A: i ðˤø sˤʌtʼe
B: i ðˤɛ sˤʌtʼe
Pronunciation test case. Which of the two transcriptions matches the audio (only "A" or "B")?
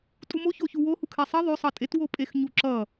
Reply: A